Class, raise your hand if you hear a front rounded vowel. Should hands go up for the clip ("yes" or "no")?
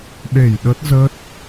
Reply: no